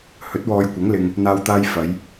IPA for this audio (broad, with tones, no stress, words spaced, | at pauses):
hɵ˨˥t̚wɔː˨jkʷɐ˨˥ŋ lɪ˧ŋ | n̪aː˨wt̪aː˧j fɐ˨˧j